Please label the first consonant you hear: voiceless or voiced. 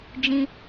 voiced